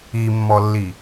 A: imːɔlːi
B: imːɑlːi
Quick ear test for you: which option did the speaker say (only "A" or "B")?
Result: A